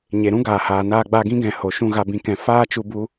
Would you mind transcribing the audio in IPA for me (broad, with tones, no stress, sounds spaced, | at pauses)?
ɲ e˨ ɾ ũ˦ ɡ aː˨ h aː˨ n aː˧ ɡ͡b a˧ ɡ ĩ˦ ɡ ɛ̃˨ h o˨ ʃ ũ˦˨ ɣ a˧ b ĩ˨ k ɛ̃˨ f aː˦ t͡ʃ u˧ b u˦